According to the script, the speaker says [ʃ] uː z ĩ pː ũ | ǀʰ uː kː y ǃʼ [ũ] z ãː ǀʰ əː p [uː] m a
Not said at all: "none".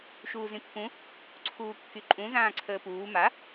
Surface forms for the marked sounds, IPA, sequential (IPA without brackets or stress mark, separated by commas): ʃ, ũ, uː